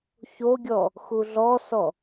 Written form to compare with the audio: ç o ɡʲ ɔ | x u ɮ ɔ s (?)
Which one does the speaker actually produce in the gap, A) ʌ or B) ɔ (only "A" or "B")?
B